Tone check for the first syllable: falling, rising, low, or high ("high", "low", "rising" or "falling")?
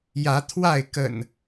rising